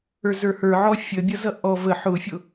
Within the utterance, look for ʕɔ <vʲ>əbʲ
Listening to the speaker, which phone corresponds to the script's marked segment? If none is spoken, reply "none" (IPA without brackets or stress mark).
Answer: fʲ